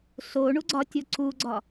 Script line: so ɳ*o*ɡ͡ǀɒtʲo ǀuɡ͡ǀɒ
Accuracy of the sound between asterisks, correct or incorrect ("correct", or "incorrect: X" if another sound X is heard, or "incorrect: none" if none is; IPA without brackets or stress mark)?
incorrect: u